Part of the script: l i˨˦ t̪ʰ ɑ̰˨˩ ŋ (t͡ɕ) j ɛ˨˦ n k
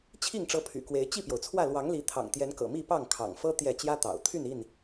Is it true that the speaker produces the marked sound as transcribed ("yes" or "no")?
no